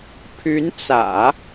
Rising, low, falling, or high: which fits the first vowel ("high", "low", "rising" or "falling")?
rising